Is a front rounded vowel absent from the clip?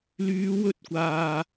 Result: no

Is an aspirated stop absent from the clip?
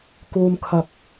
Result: no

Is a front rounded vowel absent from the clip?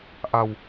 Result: yes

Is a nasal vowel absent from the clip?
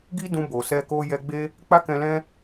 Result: no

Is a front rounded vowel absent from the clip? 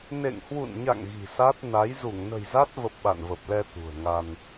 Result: yes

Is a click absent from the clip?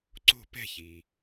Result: no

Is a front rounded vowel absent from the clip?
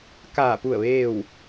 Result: yes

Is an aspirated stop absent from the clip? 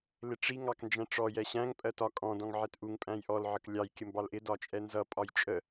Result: yes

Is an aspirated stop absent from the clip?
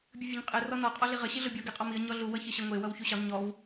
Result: yes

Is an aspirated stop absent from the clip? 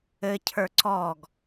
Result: no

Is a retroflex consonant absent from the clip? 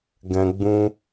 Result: yes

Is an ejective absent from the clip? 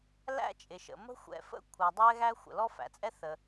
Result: no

